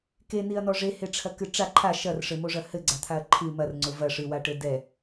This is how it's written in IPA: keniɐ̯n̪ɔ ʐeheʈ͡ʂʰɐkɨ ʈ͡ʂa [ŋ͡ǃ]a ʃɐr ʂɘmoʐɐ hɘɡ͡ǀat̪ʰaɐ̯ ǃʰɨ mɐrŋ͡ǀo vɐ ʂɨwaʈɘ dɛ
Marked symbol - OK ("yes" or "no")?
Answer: no